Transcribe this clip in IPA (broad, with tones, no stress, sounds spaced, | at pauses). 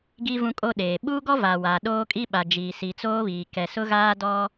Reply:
ɡ i˦ v ũ˦ kʼ o˦ ɗ eː˨ ɓ u˦ ɡ ɔ˦ v a˨ w a˨ ɗ oː˦ kʼ i˦ ɓ a˨ d͡ʒ iː˨ s i˨ t͡s oː˦ β iː˨ k ɛ˨ s ʊ˦ ɣ aː˦ d ɔ˦